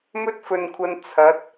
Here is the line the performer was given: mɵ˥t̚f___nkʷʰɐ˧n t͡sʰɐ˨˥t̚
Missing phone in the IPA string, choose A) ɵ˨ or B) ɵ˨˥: A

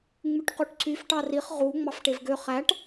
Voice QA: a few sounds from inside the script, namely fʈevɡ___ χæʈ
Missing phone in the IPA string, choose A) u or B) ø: B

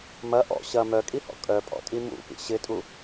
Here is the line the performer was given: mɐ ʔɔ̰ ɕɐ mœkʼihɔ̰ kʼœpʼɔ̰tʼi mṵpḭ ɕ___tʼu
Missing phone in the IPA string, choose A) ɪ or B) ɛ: A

